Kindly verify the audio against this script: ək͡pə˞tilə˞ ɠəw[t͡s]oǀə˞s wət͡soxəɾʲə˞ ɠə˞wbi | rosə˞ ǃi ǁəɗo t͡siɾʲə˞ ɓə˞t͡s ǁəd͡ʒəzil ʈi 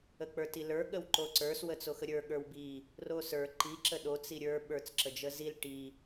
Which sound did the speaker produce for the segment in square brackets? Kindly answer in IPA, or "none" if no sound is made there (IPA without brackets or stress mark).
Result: ǃ